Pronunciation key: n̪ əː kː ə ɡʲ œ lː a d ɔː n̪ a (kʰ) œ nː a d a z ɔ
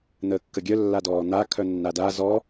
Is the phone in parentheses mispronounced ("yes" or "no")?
no